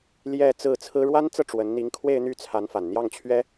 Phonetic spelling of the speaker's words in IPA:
l j ɛ˥˧ t͡s ɹ̩˥˩ t͡sʰ ɹ̩˥ ɻ w a˥ n t͡s ɤ˥˩ ʈ͡ʂ w ə˧˥ n n̪ i˧˥ ŋ kʰ w e˥˧ ɪ̯ n̪ y˥˩ t͡sʰ a˧˥ n f a˨˩ n n̪ j ɑ˥˩ ŋ t͡ɕʰ ɥ ɛ˥

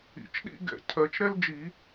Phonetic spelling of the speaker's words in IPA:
ḭ˨˩˦ t͡ʃ ɗ ḭ˥ ɡ ɛ̰˨˩˦ cʰ ɜ˨˩˦ t͡ʃ ɾ ɛ˥ l d͡ʒ i˨˩˦

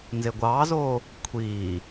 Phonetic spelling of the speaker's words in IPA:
n z e ɡʷ ɑː z oː | kʷʰ iː

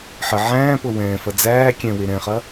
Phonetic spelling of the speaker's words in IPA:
ħ ə ʕ æ̃ː p ɤ w ɛ̃ː f ɐ d͡z æː kʲ ɛ̃ w e ɾ ɛ̃ χ ɐ

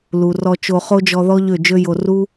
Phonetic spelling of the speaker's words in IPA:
l u˨ r ɔ˧ t͡ʃ o˧ χ o˦ d͡ʒ ɔ˧ ð ɔ˦ ʎ ø˦˨ d͡ʒ ø˦ j o˧ r u˦

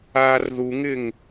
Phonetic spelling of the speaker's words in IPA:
aː r ð u ŋ ɪ ŋ

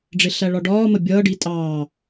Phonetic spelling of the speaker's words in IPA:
ɖ͡ʐ ɪ ɬ æ ɭ ɒ ɖ ɒː m ə bʲ ʌː ɖ i tʼ ɑː

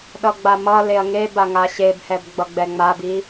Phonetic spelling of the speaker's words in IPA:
ɗ ʌ ɡ͡b a m ʌ l e ɐ̯ ŋ e b a ŋ a ɕ e b h ɛ b ɡ͡b ʌ ɡ͡b ɛ ŋ͡m a b i

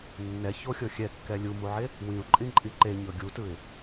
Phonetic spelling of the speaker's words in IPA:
nː ɛ ç o xʲ ɤ xʲ ɛ kː ɛ lʲ u m u ʕ e | w ĩ ʊ̯ ǃʼ ĩ ǃʼ i ǃ e ɲ ɤ ɡʲ u t ɯ ɪ̯

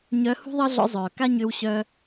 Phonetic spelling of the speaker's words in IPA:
ɲ œ˧˥ h ṳ˥ ðˤ ɤ˥ ɮ ɔ̰˧˥ zˤ œː˩ k a˥ ɲ ʏː˧ w ɕ œ˧

